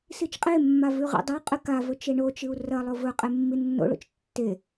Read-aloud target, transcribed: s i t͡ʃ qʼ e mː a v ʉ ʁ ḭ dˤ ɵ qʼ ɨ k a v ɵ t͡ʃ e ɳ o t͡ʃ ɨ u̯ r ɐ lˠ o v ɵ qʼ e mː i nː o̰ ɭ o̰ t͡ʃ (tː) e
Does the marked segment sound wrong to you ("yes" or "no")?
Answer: no